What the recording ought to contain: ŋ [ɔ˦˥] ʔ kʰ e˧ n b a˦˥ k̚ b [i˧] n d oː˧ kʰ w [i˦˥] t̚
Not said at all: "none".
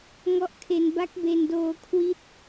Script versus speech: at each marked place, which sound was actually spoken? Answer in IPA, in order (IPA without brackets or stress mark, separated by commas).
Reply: ɔ˦˥, e˧, i˦˥